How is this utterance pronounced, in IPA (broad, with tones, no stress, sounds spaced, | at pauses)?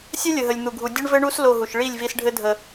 sʲ œ˦ lʲ ə˨ ɦ ə˨ lʲ n̪ u˨ ɡʱ u˨ dʲ ɘ˦ ɳ v ɘ˦ ɳ u˦ s l o˧ ɦ u˨ ʃ ɭ i˦˨ lʲ v i˧ s ɖʱ ɘ˦ dʱ ə˧